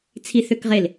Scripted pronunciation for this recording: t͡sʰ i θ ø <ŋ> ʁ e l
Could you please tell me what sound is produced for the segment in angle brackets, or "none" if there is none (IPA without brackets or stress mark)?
k